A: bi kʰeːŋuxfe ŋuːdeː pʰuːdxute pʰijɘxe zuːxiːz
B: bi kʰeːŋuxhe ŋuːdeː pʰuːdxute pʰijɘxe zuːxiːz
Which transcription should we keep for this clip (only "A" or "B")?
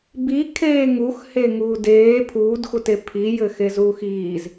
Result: B